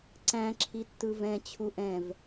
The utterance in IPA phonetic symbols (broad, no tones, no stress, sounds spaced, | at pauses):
ǀ æ̃ ǁʰ i tː ɯ v ɛ̃ t͡ɕʰ u ʔ ɛ̃ v